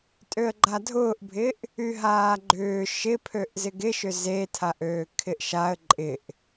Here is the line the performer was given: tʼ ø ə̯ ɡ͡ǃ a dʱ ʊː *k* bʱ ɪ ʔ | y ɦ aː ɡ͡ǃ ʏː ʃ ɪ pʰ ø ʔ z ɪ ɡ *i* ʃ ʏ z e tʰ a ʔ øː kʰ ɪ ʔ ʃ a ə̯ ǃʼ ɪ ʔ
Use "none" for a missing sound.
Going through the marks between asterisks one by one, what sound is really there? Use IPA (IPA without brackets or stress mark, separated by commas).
ʔ, ɪ